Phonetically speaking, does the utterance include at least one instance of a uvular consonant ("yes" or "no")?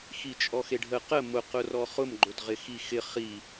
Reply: yes